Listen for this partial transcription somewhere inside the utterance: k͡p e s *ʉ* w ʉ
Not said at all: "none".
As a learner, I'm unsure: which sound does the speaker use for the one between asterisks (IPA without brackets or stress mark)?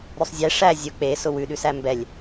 ʊ